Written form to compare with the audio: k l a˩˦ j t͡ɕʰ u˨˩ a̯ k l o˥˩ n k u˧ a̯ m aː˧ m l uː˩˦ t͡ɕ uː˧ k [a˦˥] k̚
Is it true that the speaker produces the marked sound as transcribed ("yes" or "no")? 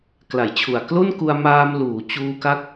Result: yes